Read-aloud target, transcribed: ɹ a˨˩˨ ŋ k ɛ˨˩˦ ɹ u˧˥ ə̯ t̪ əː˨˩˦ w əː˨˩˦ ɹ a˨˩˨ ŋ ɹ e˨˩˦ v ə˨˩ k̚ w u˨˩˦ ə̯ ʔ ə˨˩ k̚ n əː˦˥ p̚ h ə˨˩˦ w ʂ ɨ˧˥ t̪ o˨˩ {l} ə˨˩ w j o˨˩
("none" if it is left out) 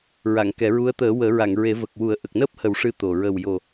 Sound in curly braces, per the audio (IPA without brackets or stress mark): ɹ